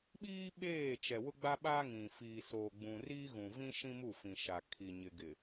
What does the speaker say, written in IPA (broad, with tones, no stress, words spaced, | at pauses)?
ɓiː˦ ɓeː˦˨ t͡ʃɛ˨wʊ˦ɡ͡ba˦ɓaː˦ ŋĩ˨ fiː˨soː˨ɡ͡bũ˨ riː˦ɣũ˨vĩ˦ ʃĩ˦mu˦˨fĩ˨ ʃa˨kʰi˨ɲɪ˨ɡɪ˨